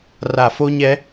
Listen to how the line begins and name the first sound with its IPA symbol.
r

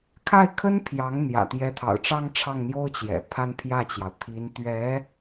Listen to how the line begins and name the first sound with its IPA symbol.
kʰ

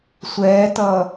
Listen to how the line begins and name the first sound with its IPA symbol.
sʷ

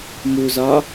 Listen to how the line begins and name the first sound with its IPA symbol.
m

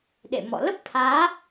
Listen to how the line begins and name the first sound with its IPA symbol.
ɗ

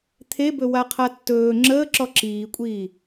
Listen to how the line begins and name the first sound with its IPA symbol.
t̪ʰ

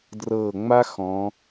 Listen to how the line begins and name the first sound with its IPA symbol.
d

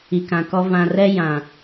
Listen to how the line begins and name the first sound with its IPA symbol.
i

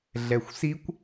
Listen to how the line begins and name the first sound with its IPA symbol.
ɮ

